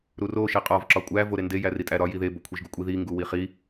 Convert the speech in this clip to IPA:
ɾ u r o ʃ i qʼ ɒ v ǁ ɒ kʷʼ æ v o ɾ e n d e j æ r i tʼ æ ɾ ɒ j i ð e b o kʷʰ i ʒ ɡ u kʷʼ i ð i ŋ ɡ u w i χ i

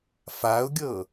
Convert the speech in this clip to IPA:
f a ʊ̯ ɡʲ ɤ

